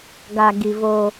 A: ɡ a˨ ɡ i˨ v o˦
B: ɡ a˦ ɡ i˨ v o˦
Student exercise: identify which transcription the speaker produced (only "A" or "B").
A